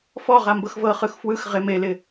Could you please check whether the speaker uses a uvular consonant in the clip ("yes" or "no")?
yes